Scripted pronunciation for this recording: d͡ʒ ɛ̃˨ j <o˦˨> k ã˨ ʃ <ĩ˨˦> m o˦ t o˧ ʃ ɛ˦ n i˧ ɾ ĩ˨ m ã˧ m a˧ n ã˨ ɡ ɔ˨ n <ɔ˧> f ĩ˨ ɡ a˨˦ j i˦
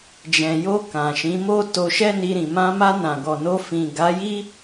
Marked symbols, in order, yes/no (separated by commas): no, yes, no